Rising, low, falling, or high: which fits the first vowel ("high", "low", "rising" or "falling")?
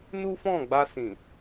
high